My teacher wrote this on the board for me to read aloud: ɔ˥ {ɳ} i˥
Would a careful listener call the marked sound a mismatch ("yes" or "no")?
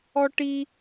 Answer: yes